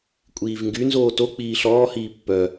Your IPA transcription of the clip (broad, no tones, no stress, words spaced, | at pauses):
kʷʼiːvŋɡynzoː tok͡piː ɬɔːhiː pːœ